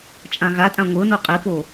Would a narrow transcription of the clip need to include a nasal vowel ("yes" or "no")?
yes